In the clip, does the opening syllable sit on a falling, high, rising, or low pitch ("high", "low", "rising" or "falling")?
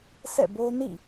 falling